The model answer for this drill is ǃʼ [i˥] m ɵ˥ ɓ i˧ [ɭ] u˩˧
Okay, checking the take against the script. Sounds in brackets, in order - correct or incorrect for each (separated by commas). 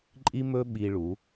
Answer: correct, correct